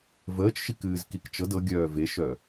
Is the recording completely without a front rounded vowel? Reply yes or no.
no